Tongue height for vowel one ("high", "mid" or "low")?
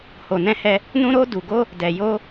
mid